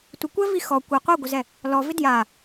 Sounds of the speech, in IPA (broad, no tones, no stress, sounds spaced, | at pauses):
tʷ ɪ kʷ ɛ v i x ɔ kʷ ɛ qʷ ɛ ɡʷ ɘ z ɛ | l ɔ v ɪ d j a